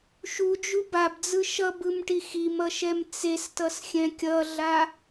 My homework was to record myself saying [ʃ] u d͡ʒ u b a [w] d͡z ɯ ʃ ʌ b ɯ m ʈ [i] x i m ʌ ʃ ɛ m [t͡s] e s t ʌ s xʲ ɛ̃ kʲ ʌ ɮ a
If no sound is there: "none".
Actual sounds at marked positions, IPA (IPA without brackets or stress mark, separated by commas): ʃ, b, i, t͡s